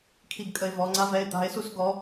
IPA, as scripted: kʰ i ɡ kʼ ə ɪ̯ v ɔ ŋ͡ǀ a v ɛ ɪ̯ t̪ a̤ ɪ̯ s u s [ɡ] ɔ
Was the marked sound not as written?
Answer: no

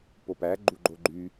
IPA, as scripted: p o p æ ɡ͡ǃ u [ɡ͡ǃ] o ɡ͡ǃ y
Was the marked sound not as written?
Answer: no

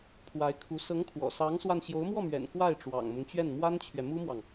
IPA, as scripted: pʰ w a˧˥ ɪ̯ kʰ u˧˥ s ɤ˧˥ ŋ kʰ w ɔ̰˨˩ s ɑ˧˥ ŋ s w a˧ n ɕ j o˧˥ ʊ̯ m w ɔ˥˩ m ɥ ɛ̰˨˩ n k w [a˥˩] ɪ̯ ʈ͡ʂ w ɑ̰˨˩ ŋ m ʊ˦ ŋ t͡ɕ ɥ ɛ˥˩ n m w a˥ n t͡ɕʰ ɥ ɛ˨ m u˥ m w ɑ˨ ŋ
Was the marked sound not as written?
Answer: no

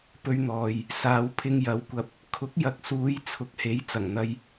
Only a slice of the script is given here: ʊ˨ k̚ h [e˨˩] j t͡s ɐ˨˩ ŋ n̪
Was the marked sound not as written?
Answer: yes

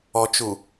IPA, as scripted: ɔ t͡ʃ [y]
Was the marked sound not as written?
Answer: yes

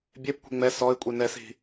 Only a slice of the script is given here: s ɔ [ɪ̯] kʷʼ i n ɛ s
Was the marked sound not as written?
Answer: no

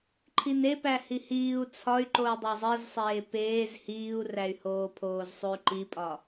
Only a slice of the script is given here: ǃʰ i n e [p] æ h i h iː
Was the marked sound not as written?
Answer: no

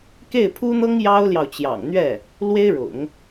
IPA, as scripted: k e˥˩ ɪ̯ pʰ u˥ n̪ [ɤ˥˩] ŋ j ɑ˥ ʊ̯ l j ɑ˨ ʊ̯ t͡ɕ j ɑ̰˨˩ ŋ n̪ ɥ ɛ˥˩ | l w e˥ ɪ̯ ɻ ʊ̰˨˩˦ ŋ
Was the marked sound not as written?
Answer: yes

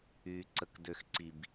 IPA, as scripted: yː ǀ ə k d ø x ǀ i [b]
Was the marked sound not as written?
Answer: no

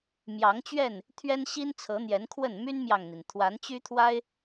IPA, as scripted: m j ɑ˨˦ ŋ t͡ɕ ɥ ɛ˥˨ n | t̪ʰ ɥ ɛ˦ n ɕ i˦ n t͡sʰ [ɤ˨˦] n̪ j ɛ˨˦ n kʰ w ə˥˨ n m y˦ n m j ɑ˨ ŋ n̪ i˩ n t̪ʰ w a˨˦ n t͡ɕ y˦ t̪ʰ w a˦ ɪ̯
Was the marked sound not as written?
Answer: no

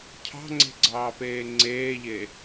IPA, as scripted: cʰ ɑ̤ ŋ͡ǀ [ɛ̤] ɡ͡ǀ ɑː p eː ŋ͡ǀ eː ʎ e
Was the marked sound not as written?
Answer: yes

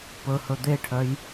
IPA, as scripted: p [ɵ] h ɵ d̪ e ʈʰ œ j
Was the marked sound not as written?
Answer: no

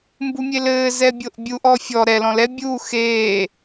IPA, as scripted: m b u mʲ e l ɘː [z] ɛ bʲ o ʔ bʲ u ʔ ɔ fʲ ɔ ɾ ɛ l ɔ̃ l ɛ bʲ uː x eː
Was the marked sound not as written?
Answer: no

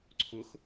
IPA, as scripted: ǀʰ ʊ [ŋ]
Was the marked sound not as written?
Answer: yes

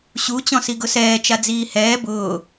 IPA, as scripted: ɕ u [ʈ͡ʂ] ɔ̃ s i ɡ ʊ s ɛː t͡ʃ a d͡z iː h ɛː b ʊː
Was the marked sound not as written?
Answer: yes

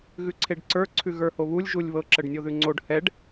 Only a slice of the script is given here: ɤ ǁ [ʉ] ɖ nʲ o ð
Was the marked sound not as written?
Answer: yes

